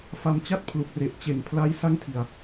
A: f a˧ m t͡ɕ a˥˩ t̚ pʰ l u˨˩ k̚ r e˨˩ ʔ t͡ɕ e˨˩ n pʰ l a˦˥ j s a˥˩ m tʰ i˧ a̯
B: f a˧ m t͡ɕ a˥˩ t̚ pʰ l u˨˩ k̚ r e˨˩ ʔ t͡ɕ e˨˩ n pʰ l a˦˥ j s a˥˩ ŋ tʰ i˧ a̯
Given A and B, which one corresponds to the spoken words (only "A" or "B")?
B